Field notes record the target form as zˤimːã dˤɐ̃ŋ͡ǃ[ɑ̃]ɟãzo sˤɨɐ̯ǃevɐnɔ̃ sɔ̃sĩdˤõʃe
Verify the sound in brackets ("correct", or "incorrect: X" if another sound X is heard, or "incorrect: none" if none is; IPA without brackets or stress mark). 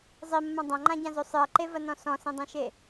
incorrect: ã